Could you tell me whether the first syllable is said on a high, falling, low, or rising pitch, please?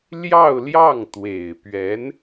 falling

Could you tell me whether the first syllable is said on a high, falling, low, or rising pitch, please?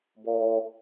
high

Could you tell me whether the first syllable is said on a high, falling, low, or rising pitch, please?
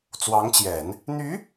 rising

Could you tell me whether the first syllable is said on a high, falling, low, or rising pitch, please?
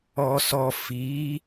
low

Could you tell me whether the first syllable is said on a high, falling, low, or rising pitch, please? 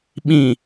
low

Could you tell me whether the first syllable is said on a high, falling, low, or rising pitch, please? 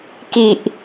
low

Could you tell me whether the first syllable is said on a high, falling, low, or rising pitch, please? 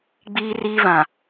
high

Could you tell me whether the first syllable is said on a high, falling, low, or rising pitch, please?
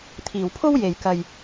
low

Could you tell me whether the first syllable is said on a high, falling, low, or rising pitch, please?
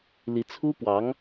rising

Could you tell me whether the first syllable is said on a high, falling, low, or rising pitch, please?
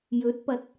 rising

